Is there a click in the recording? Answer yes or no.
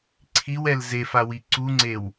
yes